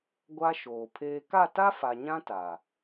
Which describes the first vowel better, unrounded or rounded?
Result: unrounded